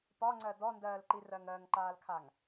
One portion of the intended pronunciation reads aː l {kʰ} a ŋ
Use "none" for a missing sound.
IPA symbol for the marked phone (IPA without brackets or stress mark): kʰ